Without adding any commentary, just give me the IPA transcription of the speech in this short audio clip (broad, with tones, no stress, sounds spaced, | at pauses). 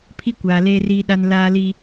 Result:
pʰ i˦ kʷ aː˨ l eː˦ r iː˦ ɗ a˦ n l aː˦ l iː˦